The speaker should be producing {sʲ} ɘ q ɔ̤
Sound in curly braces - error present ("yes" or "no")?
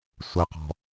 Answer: yes